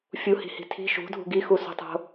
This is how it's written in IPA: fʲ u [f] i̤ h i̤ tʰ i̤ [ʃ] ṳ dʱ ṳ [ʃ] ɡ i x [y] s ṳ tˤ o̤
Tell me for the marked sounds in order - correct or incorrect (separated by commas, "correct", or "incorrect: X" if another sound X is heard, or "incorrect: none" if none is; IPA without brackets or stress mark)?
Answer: incorrect: h, correct, incorrect: none, incorrect: u